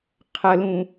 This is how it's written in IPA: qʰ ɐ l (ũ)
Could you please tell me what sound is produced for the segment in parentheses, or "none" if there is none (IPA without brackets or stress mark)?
ũ